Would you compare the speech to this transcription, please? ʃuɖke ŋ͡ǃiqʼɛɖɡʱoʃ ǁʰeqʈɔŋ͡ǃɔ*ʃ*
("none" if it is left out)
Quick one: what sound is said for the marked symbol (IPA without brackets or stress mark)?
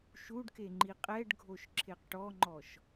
ʃ